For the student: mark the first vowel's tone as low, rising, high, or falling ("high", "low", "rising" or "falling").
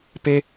high